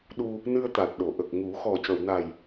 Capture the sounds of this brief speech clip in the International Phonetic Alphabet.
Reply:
ɗ u˧ | n ɨ˧ ə̯ t̪ a˨˩ t̚ ɗ o˨˩˨ ʔ ə˨˩ k̚ ŋ u˨˩˦ x ɔ˨˩ c ə˨˩˨ w n a˨˩ j

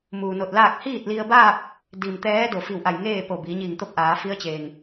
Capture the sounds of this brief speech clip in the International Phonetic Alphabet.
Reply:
m uː˩ n o˧˩ t̚ l aː˥˨ k̚ h iː˥˨ t̚ l i˧ ə̯ b aː˥˨ p̚ | d i˩ m t̪ ɛː˧˥ d o˩ f i˧˩ w ʔ a˧˩ j ŋ eː˥˨ p o˧˩ b iː˩˧ ɲ iː˧˩ ŋ t̪ o˥˨ p̚ ʔ aː˩˧ f i˧˥ ə̯ t͡ɕ eː˩ ŋ

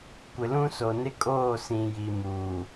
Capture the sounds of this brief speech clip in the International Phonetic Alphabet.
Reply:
kʷ ɪ˨ l ũ˦ s o˨ n ɪ˦ kʼ oː˦˨ s ĩ˨ j i˨ m uː˨

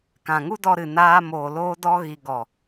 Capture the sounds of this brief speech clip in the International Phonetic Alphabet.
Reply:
k ã˨ ŋ u˦ d ɔ˧ ɾ ɨ˨ n aː˧ m oː˨ l oː˦ d ɔ˦ ɣ i˧ ɡ ɔ˨

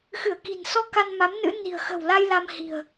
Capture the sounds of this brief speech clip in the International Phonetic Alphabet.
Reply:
x ɨ˧˩ ə̯ k i̤˨˩ n s ɔ˧ k a˧ n m a˨˦ m n ɨ̰˧˥ n i̤˨˩ ə̯ x ə̤˨˩ w l a˧ j l a˧ m h i̤˨˩ ə̯

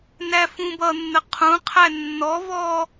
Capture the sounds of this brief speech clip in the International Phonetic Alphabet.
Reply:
n æ f ũ b ʌ nː ə qʰ ũ qʰ æ nː ɔ v ɔ

